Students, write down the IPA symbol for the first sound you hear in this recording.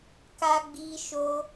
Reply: k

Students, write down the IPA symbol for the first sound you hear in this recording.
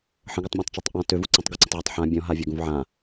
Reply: ħ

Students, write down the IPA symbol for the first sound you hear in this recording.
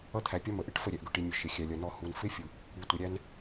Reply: ʌ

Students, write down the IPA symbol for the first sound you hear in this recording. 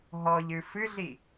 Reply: ɦ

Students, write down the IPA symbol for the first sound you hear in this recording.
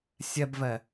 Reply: sʲ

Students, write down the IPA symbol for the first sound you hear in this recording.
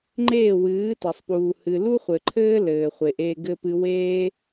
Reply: ŋ͡ǃ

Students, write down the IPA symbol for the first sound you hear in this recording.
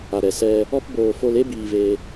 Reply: a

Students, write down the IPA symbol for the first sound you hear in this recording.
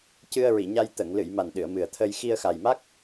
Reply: c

